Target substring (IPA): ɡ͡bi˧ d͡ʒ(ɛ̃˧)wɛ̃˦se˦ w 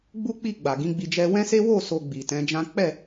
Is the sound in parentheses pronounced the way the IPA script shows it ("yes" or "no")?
no